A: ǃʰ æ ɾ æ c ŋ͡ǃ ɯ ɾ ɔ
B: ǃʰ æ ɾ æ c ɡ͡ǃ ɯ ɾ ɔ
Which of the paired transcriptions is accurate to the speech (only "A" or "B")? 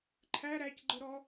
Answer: B